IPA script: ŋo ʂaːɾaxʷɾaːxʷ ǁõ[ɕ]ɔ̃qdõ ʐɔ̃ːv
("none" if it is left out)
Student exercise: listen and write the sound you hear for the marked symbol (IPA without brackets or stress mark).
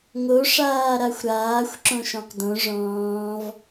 ʃ